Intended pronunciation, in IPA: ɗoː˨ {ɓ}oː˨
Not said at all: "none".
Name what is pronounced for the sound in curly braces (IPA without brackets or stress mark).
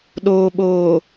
ɓ